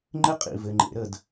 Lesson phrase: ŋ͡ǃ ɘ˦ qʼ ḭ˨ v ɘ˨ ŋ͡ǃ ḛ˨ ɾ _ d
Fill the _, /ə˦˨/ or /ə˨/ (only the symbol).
ə˦˨